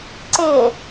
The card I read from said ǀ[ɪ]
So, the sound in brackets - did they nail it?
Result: yes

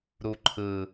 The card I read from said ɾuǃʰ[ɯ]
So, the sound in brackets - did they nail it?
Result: yes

